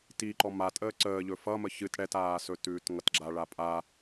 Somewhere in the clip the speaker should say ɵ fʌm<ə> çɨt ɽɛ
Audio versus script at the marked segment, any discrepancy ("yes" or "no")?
no